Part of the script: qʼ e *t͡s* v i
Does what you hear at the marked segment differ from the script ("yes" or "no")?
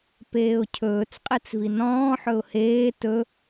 no